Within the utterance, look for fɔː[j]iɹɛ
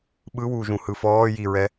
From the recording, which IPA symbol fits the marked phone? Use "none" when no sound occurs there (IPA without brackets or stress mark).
j